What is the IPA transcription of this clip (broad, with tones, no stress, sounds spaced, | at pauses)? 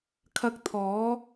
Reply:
kʰ ɐ˧ k̚ t̪ʰ ɔː˨˧